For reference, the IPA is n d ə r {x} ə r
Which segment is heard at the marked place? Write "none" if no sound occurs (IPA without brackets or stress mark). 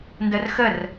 x